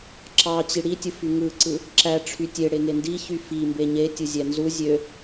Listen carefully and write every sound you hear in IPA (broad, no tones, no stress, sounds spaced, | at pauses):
ǁ ɑ t͡ɕ i ɽ i tʲ ɯ f y ŋ ɯ ǀ ɯ | ǁ æ ʈ͡ʂʰ y tʲ e ɽ e ŋ e n d i ç y f i m b e ɲ e tʲ ɯ zʲ æ n z u zʲ ø